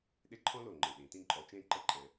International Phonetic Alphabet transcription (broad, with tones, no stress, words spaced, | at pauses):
ɗe˦ ǃʰɔ̃˦lo˨˩ ŋ͡ǃɨ˨˩ɗĩ˨˩˦ tĩ˦˨ǃʼɔ˨˦ t͡ʃẽ˦˨ǃə˦˨ǃʼɛ̃˨˩˦